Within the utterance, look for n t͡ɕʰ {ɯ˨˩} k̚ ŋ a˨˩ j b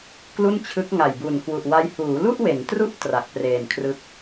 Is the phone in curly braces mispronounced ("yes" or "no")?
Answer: yes